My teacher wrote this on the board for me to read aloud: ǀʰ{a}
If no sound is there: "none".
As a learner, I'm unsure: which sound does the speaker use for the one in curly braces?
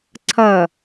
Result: ʌ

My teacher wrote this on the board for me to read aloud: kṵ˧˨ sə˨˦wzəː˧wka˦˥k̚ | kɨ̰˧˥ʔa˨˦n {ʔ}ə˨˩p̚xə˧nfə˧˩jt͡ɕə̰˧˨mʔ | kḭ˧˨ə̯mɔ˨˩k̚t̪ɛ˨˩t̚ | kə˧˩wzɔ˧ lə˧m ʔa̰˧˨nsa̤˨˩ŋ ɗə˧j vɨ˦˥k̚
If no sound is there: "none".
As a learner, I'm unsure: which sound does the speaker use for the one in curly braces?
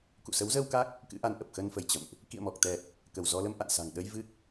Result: ʔ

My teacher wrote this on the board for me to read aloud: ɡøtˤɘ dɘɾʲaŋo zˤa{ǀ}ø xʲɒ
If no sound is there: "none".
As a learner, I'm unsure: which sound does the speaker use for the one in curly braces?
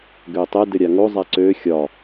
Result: ǀ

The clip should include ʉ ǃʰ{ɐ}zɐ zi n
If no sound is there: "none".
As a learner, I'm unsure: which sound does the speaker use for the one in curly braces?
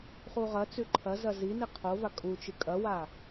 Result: ɐ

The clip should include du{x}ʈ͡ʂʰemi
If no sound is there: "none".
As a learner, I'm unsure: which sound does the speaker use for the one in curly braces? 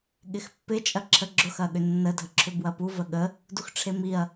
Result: x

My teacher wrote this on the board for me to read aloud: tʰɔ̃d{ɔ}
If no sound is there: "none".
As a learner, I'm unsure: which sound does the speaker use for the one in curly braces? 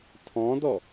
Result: ɔ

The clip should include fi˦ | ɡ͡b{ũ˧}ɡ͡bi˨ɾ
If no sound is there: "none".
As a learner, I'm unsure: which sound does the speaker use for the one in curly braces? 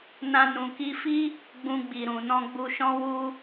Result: ũ˧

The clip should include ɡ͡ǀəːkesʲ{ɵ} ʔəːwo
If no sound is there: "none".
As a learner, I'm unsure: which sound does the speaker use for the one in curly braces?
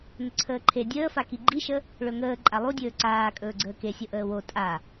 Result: o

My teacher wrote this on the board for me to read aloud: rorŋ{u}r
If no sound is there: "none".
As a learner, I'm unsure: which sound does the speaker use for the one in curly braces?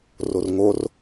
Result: o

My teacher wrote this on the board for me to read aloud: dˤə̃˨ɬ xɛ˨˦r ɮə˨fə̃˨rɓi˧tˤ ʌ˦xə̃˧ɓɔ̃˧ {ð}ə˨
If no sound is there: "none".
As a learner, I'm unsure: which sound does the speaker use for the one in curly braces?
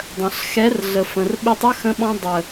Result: dˤ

